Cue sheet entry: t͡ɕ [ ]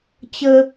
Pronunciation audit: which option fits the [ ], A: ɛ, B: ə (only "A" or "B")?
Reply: B